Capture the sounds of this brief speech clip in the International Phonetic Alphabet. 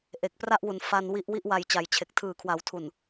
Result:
ʔ e˨˩ k̚ p r a˥˩ ʔ w u˨˩ n f a˧ n w i˦˥ ʔ w i˦˥ ʔ w a˨˩ j t͡ɕ a˨˩ j t͡ɕʰ e˨˩ k̚ tʰ ɯː˨˩ kʰ w a˩˦ w tʰ u˨˩ n

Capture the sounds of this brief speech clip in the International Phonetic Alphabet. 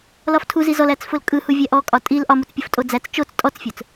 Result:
l ɒ f tʰ u z i z ɔ l æ t͡s f ʊ l kʼ ɯ h u vʲ æ ʔ ɔ kʼ ɒ tʼ i l ʔ ɒ m u t͡s pʲ ʊ f tʼ o d͡z æ t͡s t͡ʃ o t͡s tʼ ɔ t͡s fʲ ʊ t͡s

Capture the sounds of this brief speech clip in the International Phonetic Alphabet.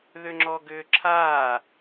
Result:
ð ʏ ŋ͡ǁ ɔ ɡ ʏː ǁʰ aː

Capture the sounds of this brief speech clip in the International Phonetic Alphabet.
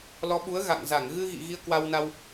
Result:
l ɔ˨˦ ɓ u˨˦ ə̯ ɣ a̰˧˨ ŋ z a˧˩ ŋ ɣ ɨ˧ ɣ ḭ˧˨ ɣ i˧ ə̯ k w a˧ w n a˧ w

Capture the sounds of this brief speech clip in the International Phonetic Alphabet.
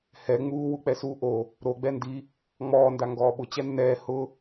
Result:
h ɛ ŋ͡m uː w u k͡p ɛ s uː ʔ o | ɾ o ɡ͡b ɛ n d i | ŋ͡m ɔː n d a ŋ ɡ ɔː ɓ ʊ t͡ɕ ɛ nː ɛː h ʊ

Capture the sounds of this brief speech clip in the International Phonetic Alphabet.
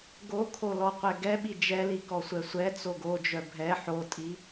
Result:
ɡ o kʰ o l ɔ qʷ ɛ ɡ ɛ ɓ i d͡ʒ ɛ l i k ɔ sʷ ɛ sʷ ɛ t͡s o ɡ o d͡ʒ œ bʱ ɛ ħ o tʼ i

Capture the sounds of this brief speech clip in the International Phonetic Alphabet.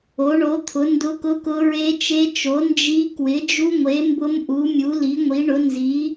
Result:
o˨˥ ɳ o˨˥ t̪ʰ ʊ˨˥ n d ʊ˦˥ k ʊ˦˥ k ʊ˦˥ ɹ e˦˥ t͡ʃ e˦˥ t͡ʃ o˨˥ n d͡ʒ i˦˥ k w ɪ˨˥ d͡ʒ u˦˥ ŋʷ e˨˥ m b ʊ˦˥ m ʔ u˨˥ mʲ u˨˥ l i˨˥ ŋʷ i˨˥ ɳ ʊ˨˥ n z i˨˥

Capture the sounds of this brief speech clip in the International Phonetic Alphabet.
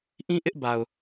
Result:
ʔ ĩ˦ ʔ ɪ˦ ʔ b a˨ ʊ̯

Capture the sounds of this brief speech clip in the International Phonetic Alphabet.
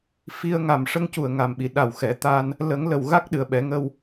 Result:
f i˧ ə̯ ŋ a˨˩ m ʂ ə˧ ŋ c u˨˩ ə̯ ŋ a˨˩ m ɓ i˨˩˨ ɗ a˨˩ w x ɛ˨˩˦ t̪ a˧ n | l ə˨˩˦ ŋ l ə˨˩ w ɣ a˦˥ k̚ ɗ ɨ˨˩ ə̯ ɓ ɛ˨˩˦ ŋ ə˧ w

